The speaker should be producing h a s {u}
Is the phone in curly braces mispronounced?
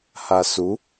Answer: no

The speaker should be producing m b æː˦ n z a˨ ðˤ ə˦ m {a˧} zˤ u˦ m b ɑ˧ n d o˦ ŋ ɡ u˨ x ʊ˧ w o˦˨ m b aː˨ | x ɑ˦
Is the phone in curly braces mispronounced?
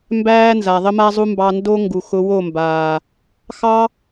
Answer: yes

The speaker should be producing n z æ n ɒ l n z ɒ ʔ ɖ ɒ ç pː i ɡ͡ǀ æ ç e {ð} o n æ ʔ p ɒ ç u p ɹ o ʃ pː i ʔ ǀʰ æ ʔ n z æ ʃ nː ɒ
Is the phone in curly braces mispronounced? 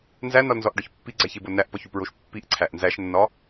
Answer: yes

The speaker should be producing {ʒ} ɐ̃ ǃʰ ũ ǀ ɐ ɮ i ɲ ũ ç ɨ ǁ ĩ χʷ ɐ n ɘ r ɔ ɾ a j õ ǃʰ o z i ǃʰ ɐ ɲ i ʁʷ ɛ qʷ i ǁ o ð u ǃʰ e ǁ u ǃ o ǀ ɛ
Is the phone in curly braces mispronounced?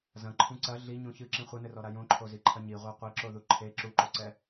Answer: yes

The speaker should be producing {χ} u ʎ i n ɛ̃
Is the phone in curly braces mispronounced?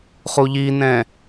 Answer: no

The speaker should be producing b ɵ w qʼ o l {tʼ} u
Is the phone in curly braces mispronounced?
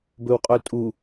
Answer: no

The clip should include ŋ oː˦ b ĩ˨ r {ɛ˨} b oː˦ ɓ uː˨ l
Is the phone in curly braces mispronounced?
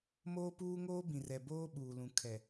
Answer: no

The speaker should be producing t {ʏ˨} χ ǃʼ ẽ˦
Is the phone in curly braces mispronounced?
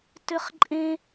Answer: yes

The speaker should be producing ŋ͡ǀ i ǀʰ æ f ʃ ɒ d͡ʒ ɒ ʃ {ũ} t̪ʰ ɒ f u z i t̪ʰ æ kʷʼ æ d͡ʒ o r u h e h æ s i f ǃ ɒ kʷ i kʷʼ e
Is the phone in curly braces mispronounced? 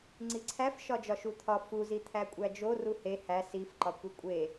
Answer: yes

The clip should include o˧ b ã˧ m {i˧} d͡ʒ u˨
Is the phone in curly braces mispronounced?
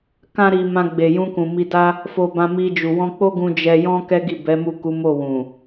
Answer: no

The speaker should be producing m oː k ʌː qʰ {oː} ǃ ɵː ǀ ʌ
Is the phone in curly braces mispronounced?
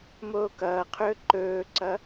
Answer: yes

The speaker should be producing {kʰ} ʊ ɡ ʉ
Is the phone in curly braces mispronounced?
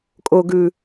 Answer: yes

